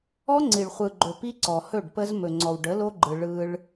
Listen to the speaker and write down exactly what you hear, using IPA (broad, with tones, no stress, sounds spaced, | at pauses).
ɔ˦ ŋ͡ǀ i˨ ɭ χʷ ɯ˨ ɡ͡ǃ ɵ˨ p i˦ ǀ ɔ˨ h ɵ˦˨ ɖ p ə˦ z m ɵ˨ ŋ͡ǀ ɔ˨ w ɖ ə˨˦ l o˦ ɡ͡ǃ ɯ˨ ɭ ɯ˦ ɭ